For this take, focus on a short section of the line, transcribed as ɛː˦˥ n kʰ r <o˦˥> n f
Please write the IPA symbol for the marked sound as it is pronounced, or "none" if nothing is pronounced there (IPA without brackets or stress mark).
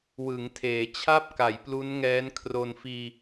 o˧